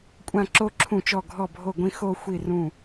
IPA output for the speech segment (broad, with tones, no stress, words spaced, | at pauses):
kʷʼã˥˧ ǁo˥˧ ǁʰũ˥˩t͡ʃɔ˥˩ ɡʱɔ˥˩bʱo˥˩ɡʷĩ˥˧ xo˥˧xʷi˥˩ rũ˥˩